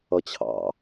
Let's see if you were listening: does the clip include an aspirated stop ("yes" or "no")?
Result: yes